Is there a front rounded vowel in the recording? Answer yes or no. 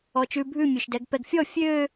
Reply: yes